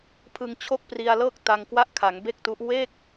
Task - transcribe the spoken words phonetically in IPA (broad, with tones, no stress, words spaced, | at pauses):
pʰɯ˧ŋ t͡ɕʰo˥˩k̚pri˧a̯lɤː˥˩k̚ ta˧ŋkwa˥˩ʔkʰa˩˦ŋ be˥˩k̚tu˦˥ʔ we˥˩k̚